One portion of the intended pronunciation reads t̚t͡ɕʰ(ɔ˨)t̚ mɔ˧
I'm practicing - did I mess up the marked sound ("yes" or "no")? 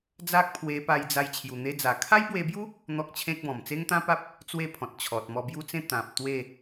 no